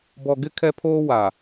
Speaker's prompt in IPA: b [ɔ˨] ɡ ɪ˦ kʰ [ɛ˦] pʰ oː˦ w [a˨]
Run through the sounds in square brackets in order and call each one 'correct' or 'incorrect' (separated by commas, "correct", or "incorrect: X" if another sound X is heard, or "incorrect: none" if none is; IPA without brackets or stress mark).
correct, correct, correct